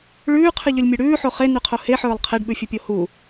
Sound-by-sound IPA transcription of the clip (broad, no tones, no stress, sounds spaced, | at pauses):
ɭ ʉː qʰ ɨ ʎ ɵ lʲ mʲ ʉ ɽ ʉː ħ o χ e n ʉ qʰ o h e ħ ɵː lˠ qʰ e ɖ ɓ ʉ fʲ ɨ pʲ o h u